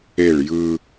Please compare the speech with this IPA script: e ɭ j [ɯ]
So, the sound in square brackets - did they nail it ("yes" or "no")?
yes